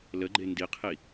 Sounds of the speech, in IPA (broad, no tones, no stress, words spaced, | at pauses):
ləɡ͡ǃe ndiqʰi